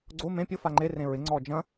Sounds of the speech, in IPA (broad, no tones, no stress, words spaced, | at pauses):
ɡ͡ǀo mẽ pʲʊfa ŋ͡ǃerẽ ɹɪŋ͡ǀɔ d͡ʒɐ̃